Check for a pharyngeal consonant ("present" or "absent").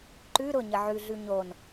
present